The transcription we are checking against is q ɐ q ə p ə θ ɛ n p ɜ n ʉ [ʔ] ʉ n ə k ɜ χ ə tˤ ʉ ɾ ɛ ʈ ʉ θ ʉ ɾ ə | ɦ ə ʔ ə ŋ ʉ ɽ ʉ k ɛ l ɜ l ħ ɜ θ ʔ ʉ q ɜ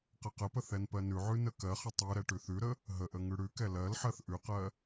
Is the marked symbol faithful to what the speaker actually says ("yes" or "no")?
no